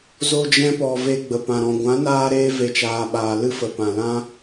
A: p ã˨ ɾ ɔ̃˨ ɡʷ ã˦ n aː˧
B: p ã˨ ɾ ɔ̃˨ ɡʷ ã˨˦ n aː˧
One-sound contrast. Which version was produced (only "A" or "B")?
B